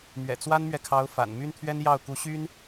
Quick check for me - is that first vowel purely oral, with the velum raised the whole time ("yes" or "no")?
yes